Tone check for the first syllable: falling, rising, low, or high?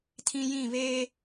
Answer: high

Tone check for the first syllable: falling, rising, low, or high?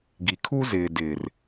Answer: low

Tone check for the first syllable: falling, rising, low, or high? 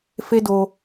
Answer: high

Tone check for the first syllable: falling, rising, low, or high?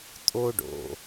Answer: high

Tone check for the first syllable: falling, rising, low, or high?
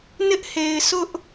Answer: high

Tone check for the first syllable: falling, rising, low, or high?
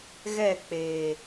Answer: falling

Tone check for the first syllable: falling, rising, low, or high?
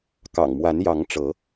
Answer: low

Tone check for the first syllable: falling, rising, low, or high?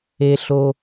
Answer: low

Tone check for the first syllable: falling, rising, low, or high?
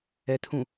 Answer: low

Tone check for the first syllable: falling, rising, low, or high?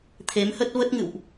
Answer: rising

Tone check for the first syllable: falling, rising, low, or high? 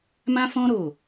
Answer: high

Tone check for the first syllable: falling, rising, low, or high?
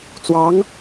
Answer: rising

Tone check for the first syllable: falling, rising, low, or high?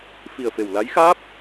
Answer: low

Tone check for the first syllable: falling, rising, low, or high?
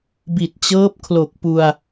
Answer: low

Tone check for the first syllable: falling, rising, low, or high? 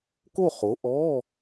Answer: falling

